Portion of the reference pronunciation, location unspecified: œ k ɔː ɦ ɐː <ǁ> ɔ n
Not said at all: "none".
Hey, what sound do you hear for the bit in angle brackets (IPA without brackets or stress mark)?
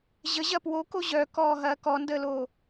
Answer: k